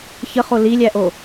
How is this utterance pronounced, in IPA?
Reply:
ç ə χ o l i lʲ æ ʔ o

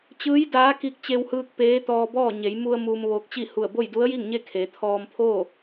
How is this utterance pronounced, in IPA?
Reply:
t͡ɕ ɯː˧˥ j d aː˧˥ k i˧ k̚ t͡ɕ e˧ w h ɯː˧ k̚ p eː˧˥ t̪ ɔː˧ b ɔː˥˨ ɲ e˩˧ j m u˧ ə̯ m uː˧ m ʋ oː˧ k̚ t͡ɕ i˥˨ h u˧˩ ə̯ b o˥˨ j d u˧˥ ə̯ j i˥˨ ŋ ɲ e˥˨ kʰ e˩˧ t̪ʰ ɔː˧ m pʰ oː˥˨

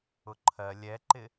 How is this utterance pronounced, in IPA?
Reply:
ʊ ǃʰ ɜ lʲ ɛ ǃ ɪ

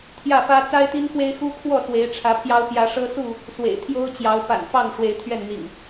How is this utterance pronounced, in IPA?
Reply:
t̪ʰ j ä˥˨ f ä˦ t͡s a˦ ɪ̯ t̪ i˦ n x w e˦ ɪ̯ x u˦ kʰ w ɔ˥˨ s w e˨˦ ɪ̯ ʈ͡ʂʰ ä˨˦ pʰ j ɑ˦ ʊ̯ p j ä˨˦ ʂ ɤ˦ s u˥˨ | s w ḛ˨˩ ɪ̯ t̪ʰ j o˦ ʊ̯ t͡ɕ j ɑ˨˦ ʊ̯ p a̰˨˩ n f ɑ˥˨ ŋ ʂ w e˨˦ ɪ̯ t̪ʰ ɥ ɛ˥˨ n n̪ ḭ˨˩ ŋ

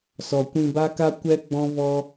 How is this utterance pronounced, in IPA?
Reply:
s ɔ˨ kʷ ĩ˧ b a˦ k a˦ kʷ ɛ˦ ɡ͡b ɔ̃˦ v ɔ˦

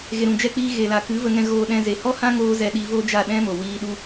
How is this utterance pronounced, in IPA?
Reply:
ɣ e˨ ɾ ũ˨ d͡ʒ ɛ˧ k͡p iː˧ ɣ e˨ l a˨ k ɨ˨˦ v ə˧ ŋ ɛ̃˧ ɣ oː˧ ɗ ɛ̃˧ z e˨ h ɔ˦ h ã˦ ŋ oː˧ z ɛ˧ ɗ i˧ v o˦ d͡ʒ a˦˨ ɗ ɛ̃˦ m o˨ w iː˧ ɗ u˦

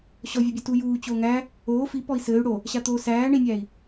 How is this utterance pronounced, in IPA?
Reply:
ɕ ɔ vʲ a bʲ o t u j uː t͡ɕ oː ŋ æ | oː f i p ɔ i̯ s ɘː y̯ ɽ o | ɕ a t̪ oː s æː ɳ i nʲ æː i̯

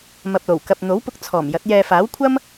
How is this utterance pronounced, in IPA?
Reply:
m ɐ˨ p̚ l o˨˩ w k ɐ˨ p̚ n̪ o˨˥ w p ʊ˧ k̚ t͡sʰ ɔː˨˩ m j ɐ˨˥ t̚ j ɛː˧ f aː˨˥ w kʷʰ ɐ˥ m

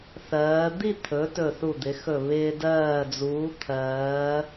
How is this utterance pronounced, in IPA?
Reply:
θ ɜː˩˧ d̪ i˥˧ t̪ʰ ɵ˩˧ t ɵ˧˩ θ u˧˩ d̪ ɪ˩˧ x ɵ˧˩ β ɪː˧ d ɜː˧˩ d͡z uː˩˧ t̪ʰ ɜː˩˧

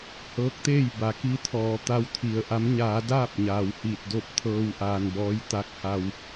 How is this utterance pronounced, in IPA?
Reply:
h ɤː˧˥ k̚ t̪ eː˥˨ j b a˩˧ k i˧˥ t̪ʰ ɔː˩˧ t̪ a˧˥ w t̪ʰ i˩ ə̯ ʔ a˧˥ m ɲ aː˩˧ d aː˥˨ p̚ ɲ aː˩ w h iː˧˩ t̚ d o˥˨ p̚ t̪ʰ ɤː˧ w ʔ aː˩ n b ɔː˧˥ j t̪ aː˧˥ k̚ h a˧ w

